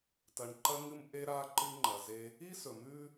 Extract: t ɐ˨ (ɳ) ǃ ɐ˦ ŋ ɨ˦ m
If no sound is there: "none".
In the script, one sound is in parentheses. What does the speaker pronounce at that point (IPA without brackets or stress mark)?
ɳ